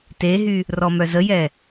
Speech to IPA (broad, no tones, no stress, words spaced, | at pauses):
teɦy | rɔmœzəjɛ